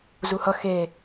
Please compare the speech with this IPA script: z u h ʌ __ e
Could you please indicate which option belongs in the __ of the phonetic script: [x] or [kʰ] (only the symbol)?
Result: x